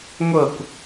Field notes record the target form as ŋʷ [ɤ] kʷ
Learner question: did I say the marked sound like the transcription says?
yes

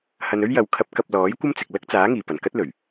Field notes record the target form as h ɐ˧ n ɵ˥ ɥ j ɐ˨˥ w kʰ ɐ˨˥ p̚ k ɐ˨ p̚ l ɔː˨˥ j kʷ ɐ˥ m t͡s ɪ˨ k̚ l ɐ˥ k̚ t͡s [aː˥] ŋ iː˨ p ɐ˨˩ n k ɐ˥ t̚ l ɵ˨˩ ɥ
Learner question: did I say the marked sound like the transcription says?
no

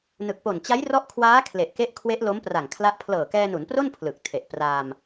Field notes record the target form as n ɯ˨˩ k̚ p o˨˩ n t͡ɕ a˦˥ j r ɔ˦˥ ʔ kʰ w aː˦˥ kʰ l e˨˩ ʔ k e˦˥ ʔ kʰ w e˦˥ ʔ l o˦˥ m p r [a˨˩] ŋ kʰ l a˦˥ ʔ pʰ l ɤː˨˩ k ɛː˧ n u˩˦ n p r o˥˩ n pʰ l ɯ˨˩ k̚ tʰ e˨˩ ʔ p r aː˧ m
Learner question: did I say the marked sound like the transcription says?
yes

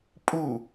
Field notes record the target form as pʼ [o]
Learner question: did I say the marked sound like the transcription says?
no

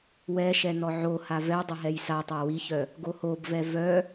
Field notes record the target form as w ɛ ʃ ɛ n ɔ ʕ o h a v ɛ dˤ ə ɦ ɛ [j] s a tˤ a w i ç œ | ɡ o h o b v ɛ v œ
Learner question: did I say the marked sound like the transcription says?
yes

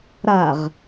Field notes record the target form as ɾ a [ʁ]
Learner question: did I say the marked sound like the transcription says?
yes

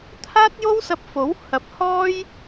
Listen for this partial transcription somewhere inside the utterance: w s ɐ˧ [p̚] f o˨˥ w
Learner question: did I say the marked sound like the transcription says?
yes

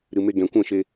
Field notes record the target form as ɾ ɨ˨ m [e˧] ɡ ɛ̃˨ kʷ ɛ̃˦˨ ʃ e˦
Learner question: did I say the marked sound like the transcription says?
yes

